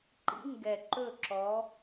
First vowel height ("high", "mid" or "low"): high